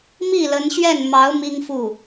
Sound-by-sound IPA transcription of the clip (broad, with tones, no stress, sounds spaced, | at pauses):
m i˥˩ l ə˧˥ n ɕ ɥ ɛ˥˩ n m ɑ˧˥ ʊ̯ m i˥ ŋ f u˥˩